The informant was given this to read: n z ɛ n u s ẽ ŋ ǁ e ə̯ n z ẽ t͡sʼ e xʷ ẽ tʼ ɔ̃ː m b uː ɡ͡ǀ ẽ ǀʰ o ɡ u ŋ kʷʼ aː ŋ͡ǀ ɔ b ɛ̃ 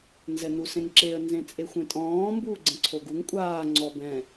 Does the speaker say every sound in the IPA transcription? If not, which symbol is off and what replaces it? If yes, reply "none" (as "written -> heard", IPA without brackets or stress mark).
none